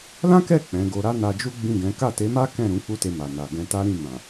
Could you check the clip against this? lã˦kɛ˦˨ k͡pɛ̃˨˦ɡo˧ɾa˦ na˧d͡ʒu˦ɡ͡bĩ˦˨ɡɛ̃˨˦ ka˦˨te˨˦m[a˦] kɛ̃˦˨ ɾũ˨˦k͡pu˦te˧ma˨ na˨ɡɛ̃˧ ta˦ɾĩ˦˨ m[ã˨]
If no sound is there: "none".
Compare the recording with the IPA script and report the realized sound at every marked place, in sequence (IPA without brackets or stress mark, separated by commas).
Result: a˦, ã˨